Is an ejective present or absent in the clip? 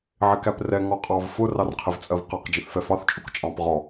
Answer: present